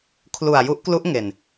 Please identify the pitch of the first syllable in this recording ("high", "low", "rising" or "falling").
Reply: low